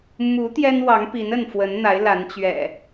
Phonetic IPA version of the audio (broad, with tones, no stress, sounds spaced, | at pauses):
m u˨˦ t̪ j ɛ˦ n w ɑ˨˦ ŋ p i˨˦ n ə˥˨ n f w ə˨˦ n n̪ a˨˦ ɪ̯ l a˨˦ n t͡ɕ ɥ ɛ̰˨˩